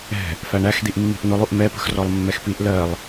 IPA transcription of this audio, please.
ɛ̤ | f æ ɳ æ x d̪ i ʔ mː i̤ ʔ n̪ ʊ lˠ u ʔ m ɛ p ə̤ x r ɔ lˠ mː ɛ x p i ʔ l ɜ lˠ

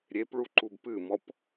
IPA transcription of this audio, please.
ɾʲ e p ɭ u ǃ u b p ɨ m ɔ p

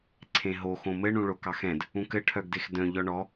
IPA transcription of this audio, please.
ǀʰ ẽ ɦ o x õ m ɘ ɳ ũ ɭ o k ɑ x ɛ̃ d | ũ k ɘ ʈʰ œ ɡ d e x d œ̃ ʎ ɔ ɳ ɔ

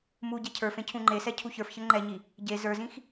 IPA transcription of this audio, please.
m u ɟ ɛ cʰ ə˞ f ẽ cʰ ũ ŋ͡ǃ e s ɛ cʰ u ç ə˞ f ç ə ŋ͡ǃ ɛ ɲ i | ɟ e z ə˞ z ĩ x

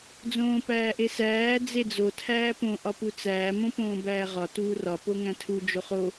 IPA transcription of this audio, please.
d͡z õː p æː ʔ e s æː d͡z e d͡z o tʰ æː p õ ʔ ɒ p u t͡s æː m õ p õː b æː ʁ ɒ t uː r ɒ p o ŋ æ̃ tʰ u d͡ʒ o χ o

